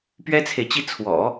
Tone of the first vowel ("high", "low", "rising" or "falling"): high